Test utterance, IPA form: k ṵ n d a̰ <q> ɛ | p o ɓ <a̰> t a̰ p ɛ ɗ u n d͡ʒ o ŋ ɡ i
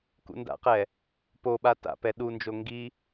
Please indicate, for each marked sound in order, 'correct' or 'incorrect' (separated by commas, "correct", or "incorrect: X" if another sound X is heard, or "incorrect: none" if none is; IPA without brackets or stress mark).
correct, incorrect: a